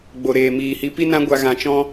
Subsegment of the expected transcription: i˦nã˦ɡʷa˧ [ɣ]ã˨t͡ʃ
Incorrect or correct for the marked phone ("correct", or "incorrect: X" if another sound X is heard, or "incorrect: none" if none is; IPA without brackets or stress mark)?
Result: correct